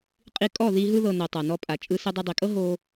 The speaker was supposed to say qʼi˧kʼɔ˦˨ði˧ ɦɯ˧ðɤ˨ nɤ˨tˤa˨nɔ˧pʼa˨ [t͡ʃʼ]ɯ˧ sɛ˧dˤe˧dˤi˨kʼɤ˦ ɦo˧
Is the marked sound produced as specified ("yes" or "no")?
yes